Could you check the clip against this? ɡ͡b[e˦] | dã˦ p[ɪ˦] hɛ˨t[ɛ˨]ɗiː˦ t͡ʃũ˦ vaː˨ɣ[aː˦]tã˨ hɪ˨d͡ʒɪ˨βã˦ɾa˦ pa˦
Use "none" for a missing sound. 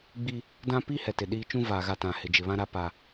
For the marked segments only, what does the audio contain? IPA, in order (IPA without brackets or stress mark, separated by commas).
i˦, i˦, ɪ˨, a˦